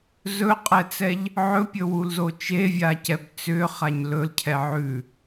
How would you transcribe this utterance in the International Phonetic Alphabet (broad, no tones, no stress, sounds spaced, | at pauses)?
z ɵ qʼ ɛ t͡s ɛ ʎ | ʕ ɵ pʲ ɵ w u l z o t͡ʃ e vʲ a c ɛ b t͡s ʏ χ a ɲ l ɵ l cʰ ɛ ʕ ʉ